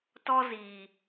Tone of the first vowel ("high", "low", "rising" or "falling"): high